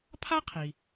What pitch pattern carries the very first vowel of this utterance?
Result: high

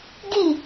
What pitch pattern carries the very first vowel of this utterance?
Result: falling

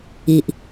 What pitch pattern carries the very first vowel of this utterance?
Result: low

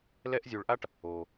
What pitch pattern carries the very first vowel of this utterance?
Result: high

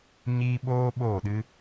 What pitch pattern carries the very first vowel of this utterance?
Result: high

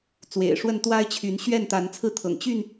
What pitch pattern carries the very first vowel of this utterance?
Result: low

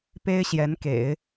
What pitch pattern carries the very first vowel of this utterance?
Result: high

